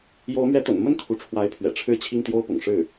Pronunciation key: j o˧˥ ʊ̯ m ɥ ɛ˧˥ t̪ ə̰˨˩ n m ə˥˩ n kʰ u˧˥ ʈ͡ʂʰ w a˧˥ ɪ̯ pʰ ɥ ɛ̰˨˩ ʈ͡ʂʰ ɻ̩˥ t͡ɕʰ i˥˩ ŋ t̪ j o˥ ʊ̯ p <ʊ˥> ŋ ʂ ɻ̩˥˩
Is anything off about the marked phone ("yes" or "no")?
yes